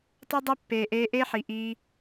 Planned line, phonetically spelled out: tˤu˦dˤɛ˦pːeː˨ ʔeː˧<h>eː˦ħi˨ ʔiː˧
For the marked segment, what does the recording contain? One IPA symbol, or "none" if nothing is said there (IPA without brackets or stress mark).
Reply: ʔ